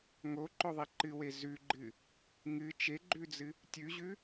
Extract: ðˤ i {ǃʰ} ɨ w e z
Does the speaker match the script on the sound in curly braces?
no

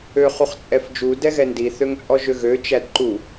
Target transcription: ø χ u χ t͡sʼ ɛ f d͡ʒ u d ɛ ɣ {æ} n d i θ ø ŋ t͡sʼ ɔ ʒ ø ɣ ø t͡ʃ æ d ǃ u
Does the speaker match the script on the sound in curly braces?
no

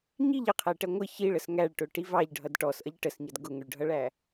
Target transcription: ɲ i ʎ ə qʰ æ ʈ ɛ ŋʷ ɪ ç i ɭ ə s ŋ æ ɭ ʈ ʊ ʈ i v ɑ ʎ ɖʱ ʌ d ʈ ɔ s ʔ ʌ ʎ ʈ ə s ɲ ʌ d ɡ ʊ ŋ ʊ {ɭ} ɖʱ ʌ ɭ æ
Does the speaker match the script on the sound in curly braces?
yes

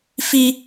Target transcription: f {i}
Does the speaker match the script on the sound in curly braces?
yes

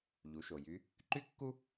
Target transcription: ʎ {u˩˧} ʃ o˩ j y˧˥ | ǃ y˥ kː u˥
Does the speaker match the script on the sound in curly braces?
yes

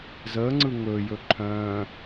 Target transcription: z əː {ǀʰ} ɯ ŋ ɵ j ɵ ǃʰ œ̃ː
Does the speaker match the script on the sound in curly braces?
no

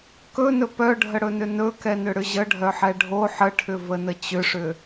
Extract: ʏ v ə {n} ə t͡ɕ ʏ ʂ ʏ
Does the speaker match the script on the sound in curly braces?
yes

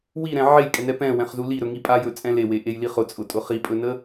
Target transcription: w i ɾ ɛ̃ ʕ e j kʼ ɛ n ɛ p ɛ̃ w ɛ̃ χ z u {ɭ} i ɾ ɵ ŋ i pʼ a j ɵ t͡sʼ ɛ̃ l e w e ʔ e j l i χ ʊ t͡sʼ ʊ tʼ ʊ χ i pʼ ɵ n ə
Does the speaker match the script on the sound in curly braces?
no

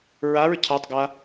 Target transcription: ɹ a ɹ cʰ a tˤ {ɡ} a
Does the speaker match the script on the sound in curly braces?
yes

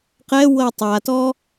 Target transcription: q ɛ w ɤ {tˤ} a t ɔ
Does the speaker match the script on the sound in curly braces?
yes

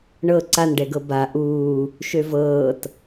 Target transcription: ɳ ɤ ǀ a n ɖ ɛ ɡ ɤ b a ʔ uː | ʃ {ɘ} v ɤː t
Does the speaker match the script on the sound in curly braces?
no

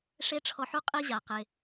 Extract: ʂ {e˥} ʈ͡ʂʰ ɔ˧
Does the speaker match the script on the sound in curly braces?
yes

